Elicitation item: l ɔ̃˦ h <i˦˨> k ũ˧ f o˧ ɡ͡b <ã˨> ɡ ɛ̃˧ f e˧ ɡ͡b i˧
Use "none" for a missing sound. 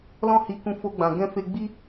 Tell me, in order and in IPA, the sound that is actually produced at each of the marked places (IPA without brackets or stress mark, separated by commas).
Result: i˧, ã˨